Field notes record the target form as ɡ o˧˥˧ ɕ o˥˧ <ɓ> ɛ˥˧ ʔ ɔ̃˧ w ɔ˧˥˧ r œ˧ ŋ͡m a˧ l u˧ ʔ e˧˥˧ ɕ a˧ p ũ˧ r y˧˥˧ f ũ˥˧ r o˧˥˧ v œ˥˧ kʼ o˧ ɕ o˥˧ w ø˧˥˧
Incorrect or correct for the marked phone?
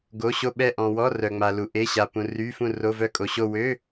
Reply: correct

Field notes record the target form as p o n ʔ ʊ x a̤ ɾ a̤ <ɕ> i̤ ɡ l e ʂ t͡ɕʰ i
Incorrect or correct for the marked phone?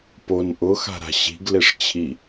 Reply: correct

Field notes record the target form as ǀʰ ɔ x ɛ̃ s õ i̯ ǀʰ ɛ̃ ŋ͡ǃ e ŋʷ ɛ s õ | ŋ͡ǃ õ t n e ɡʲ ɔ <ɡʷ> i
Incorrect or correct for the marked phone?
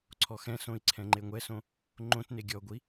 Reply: correct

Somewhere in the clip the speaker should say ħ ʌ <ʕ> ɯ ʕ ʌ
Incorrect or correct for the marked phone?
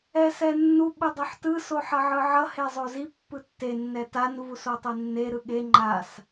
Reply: correct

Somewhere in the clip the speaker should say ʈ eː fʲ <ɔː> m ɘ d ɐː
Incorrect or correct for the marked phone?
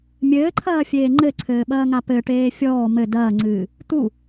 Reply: correct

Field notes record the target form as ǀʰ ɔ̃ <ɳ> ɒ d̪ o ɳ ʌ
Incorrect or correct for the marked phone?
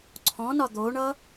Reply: incorrect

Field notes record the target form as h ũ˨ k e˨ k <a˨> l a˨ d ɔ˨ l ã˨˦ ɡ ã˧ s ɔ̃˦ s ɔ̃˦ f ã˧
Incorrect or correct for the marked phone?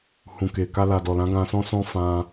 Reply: incorrect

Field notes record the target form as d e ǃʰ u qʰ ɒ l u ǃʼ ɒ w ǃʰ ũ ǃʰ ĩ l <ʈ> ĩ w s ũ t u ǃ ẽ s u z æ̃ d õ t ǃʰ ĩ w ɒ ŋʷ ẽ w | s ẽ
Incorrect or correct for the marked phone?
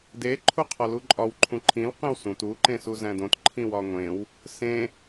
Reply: incorrect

